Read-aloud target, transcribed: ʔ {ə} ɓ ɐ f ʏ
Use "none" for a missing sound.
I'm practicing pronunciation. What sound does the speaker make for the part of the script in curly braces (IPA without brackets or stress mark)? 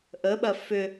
ə